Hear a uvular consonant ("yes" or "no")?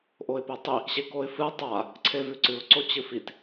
no